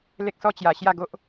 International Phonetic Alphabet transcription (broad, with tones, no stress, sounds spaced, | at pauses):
l e˦ k̚ s ɔ˦ t͡ɕ j a˨˩ ɕ j a˥˧ ɡ o˦ ʔ